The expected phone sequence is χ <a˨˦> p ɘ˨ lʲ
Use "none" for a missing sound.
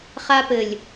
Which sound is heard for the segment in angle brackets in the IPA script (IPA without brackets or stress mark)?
a˦